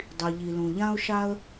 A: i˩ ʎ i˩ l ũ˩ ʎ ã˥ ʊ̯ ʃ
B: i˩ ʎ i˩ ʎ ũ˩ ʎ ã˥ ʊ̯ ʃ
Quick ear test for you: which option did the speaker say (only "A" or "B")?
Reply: A